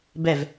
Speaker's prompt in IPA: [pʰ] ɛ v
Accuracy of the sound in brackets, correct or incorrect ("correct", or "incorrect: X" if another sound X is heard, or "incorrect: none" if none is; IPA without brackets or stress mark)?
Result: incorrect: b